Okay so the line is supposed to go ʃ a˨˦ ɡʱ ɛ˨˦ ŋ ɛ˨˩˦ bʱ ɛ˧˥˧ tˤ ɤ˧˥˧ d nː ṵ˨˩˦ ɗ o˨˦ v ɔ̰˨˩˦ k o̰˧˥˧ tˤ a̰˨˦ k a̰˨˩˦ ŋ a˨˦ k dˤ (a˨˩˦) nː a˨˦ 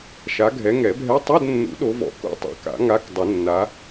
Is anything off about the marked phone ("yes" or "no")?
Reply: yes